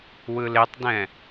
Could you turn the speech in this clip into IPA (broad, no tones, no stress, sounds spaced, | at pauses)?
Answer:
w ɯ l e tˤ d ɛ̃